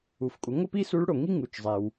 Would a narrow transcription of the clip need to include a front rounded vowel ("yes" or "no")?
no